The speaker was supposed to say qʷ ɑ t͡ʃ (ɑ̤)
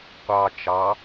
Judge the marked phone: incorrect: ɑ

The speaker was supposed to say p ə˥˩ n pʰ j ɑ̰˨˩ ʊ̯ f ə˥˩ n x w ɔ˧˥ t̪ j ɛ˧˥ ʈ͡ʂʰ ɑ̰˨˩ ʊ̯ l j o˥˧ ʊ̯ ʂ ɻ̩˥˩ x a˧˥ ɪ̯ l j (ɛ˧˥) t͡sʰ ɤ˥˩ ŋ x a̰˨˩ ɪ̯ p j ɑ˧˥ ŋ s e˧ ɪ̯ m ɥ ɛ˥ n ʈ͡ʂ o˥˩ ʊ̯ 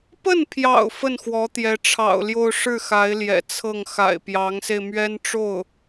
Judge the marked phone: incorrect: ɛ̰˨˩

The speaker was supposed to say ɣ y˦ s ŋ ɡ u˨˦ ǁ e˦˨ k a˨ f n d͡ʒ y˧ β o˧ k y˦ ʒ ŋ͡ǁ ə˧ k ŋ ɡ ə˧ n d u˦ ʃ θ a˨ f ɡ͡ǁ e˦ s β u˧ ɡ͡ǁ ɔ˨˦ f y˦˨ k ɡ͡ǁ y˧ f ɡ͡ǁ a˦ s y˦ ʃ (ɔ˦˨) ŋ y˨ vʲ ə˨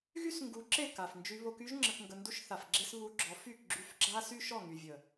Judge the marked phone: correct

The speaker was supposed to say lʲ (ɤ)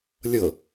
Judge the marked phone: correct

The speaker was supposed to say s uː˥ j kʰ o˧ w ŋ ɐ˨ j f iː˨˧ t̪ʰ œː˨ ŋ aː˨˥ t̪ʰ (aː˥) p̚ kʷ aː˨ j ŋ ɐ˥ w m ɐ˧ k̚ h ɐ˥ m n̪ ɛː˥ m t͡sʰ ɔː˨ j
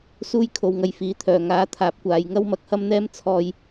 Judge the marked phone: incorrect: aː˨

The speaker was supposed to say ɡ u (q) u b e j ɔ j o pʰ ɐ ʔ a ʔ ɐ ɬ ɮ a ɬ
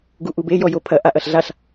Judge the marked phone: incorrect: ʔ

